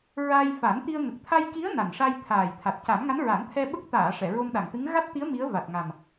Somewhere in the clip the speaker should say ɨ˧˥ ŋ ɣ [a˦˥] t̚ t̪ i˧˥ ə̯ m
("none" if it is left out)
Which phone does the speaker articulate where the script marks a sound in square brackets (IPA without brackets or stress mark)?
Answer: a˦˥